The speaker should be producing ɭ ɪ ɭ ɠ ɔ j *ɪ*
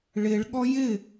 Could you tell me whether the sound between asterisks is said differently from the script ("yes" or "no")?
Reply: no